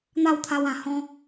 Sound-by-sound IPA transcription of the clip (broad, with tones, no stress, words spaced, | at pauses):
n̪a˥˧wt̪ʰa˧wã˨˩ hɔ̃˦